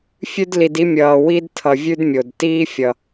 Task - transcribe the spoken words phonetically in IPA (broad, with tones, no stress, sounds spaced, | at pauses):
fʲ ʉ˦ d l i˨ d i˦ mʲ ʌː˨ w i˥ d tʰ ʌ˨ vʲ ʉ˥ d mʲ o˩ d t iː˦ fʲ ʌ˩